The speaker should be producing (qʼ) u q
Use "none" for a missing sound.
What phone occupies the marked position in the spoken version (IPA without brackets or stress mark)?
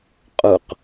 qʼ